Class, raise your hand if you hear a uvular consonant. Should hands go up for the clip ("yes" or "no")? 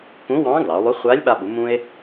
yes